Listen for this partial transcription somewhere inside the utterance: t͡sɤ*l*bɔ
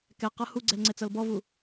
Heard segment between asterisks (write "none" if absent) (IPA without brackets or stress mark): l